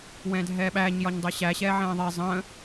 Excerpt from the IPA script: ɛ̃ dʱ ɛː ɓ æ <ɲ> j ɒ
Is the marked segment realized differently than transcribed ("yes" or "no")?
no